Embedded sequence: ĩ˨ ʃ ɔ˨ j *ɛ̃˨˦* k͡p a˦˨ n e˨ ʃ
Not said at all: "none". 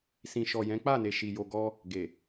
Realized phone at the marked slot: ɛ̃˨˦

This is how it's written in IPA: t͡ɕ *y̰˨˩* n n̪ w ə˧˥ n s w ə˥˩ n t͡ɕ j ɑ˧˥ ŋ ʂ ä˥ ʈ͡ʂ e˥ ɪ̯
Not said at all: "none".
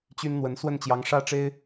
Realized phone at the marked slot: y˥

